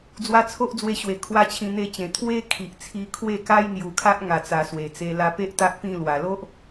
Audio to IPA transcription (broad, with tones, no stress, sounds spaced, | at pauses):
d͡z w a˧ t͡sʰ o˦ ʔ d͡z w e˧ ɕ w e˨˩ kʰ w a˧ t͡ɕʰ ĩ˧ n̪ e˥˧ t͡ɕ ẽ˨˩ t̪ʰ w e˦ kʰ i˨ ʔ t͡sʰ i˧ kʰ w e˥˧ k a˦ j n̪ j u˨˩ kʰ a˦ ʔ ŋ a˨˩ t͡s a˨˩ s w e˨˩ t͡s e˧ l a˧ p e˦ ʔ t̪ a˦ ʔ p ĩ˥˧ l w a˨˩ l o˦ ʔ